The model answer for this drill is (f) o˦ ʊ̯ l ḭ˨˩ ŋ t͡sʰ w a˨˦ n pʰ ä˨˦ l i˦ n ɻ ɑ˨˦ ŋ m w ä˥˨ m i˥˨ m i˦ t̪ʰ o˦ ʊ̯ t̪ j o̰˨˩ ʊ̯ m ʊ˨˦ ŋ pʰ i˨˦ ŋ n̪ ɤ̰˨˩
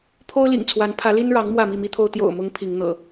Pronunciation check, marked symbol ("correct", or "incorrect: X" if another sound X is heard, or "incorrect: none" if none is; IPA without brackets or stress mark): incorrect: pʰ